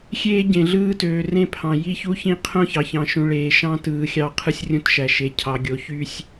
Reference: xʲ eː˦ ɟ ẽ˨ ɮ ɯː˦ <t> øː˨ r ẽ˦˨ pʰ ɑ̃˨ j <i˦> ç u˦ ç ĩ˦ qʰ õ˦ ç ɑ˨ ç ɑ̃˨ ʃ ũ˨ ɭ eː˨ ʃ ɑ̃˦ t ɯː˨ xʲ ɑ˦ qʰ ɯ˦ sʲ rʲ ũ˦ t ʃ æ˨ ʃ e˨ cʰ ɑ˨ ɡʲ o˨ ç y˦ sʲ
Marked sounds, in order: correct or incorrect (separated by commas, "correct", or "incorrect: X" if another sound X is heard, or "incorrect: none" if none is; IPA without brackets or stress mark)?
correct, correct